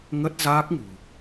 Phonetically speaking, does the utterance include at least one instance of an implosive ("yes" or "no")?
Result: no